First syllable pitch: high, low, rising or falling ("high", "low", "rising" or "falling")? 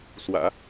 low